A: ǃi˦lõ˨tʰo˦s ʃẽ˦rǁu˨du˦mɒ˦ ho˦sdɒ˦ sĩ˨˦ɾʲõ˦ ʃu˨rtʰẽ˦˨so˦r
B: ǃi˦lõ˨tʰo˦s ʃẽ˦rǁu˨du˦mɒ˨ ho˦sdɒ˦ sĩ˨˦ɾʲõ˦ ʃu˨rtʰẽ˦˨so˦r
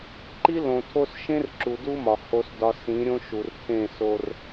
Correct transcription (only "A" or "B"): B